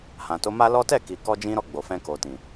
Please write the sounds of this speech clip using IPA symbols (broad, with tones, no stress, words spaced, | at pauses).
hã˨to˨˦ma˦lɔ˦ tɛ˦˨ ki˨kɔ˧d͡ʒĩ˧ɾɔ˧ ɡ͡bo˨fɛ̃˧ko˨tĩ˨